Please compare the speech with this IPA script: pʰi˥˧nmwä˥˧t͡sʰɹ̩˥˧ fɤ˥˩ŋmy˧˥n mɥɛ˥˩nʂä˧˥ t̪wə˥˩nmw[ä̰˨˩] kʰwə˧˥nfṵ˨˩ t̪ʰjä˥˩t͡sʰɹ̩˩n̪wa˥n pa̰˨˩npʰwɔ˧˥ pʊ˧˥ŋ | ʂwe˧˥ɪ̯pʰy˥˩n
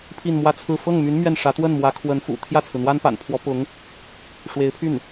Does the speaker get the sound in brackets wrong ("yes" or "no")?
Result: yes